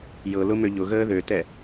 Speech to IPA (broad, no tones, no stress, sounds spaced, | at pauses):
j ɤ l ʊ m ø ʎ ʊ ɣ əː ð ø t ɛ